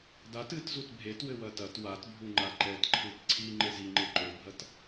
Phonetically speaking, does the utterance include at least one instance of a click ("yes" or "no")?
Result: yes